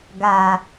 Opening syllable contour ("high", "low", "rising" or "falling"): low